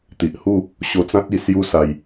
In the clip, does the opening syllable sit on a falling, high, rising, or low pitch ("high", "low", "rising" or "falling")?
low